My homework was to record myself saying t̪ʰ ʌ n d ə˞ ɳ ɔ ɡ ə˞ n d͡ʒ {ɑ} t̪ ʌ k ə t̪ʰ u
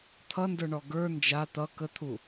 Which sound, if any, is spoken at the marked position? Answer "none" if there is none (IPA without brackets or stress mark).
a